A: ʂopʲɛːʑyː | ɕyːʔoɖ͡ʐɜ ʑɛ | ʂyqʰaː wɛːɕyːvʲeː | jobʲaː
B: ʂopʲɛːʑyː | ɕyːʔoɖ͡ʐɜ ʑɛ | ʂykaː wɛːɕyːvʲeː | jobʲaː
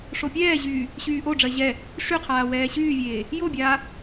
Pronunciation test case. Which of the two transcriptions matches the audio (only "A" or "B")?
A